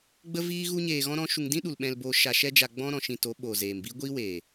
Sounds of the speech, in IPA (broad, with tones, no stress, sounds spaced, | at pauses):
ɡ͡b ə˦ v iː˦ ɣ u˦ ɲ eː˧ ɣ ɔ̃˦ ɾ ɔ̃˦ ʃ u˧ ŋ d ĩ˦ ɗ u˨ l ɓ ɛ̃˧ l b o˧ ʃ a˧ ʃ ɛ˦ d͡ʒ a˧ ɡ͡b ɔ̃˦ ɾ ɔ̃˧ ʃ ĩ˧ t o˨˦ ɓ o˨ z eː˨ m b i˦ ɡʷ iː˦ w eː˨